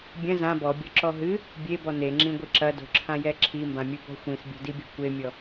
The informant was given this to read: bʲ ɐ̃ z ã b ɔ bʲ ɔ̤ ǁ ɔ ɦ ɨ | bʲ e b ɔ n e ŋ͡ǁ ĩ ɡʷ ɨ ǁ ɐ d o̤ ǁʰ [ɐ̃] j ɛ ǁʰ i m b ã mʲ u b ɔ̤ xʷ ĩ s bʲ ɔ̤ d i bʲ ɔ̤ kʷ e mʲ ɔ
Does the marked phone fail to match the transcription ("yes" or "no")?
yes